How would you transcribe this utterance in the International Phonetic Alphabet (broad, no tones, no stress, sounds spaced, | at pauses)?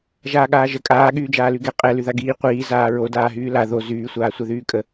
ʒ aː ɠ aː ʒ ə kʼ aː ɠ yː d͡ʒ aː l y ɡ ɛ qʼ ɛ l y ð a ɡ iː qʷ iː z aː ɹ o d aː ɦ yː l a ð o z yː sʷ aː sʷ ɛ ð yː kʼ ə